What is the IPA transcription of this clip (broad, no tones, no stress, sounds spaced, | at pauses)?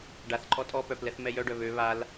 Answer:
ɖ a θ ǃʼ ɔ tʼ ɔ p œ p l ɛ θ m ɛ j œ ɖ œ β ø β a l